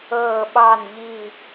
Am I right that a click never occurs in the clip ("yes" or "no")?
yes